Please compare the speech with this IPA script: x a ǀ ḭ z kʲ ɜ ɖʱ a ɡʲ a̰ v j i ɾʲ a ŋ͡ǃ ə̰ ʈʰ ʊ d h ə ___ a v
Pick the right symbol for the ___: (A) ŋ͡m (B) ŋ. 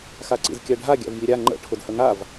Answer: B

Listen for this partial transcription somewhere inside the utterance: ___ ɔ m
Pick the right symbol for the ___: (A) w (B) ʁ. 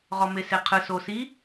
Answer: B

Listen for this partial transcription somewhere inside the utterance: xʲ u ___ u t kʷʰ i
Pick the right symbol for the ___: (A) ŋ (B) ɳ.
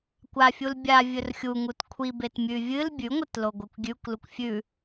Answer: A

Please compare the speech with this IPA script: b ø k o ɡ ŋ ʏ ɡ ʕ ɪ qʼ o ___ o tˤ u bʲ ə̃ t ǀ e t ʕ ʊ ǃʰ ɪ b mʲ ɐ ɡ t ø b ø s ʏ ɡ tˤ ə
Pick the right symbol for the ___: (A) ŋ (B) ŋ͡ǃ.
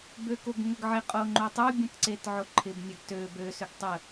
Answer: B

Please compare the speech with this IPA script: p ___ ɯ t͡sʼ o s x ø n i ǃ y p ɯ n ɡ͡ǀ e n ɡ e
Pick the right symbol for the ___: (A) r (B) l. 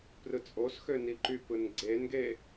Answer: A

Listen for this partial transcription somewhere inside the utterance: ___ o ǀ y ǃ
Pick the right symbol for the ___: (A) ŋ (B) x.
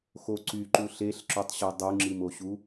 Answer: B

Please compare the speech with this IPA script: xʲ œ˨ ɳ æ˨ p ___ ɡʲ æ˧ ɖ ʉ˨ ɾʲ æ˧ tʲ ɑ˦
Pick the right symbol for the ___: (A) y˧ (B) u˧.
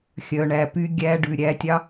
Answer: A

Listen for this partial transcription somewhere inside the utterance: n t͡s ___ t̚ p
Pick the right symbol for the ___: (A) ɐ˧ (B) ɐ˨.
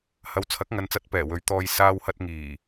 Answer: A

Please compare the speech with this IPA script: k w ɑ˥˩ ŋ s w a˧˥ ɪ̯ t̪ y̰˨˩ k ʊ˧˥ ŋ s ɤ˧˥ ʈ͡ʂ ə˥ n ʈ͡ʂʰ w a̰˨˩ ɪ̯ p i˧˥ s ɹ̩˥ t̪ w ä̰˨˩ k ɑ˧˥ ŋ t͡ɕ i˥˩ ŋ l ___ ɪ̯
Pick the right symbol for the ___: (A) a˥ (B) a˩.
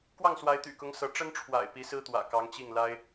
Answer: A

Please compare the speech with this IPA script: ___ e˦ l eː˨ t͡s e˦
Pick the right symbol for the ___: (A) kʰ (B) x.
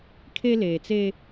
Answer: A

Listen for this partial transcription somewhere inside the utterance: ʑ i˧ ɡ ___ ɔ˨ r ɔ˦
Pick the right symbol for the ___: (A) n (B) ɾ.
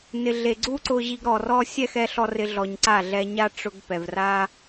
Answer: B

